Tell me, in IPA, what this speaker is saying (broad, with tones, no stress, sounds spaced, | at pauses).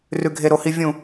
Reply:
r ʉ˨ ɡʱ e˨ ɾ o˨ h i˨ vʲ ũ˨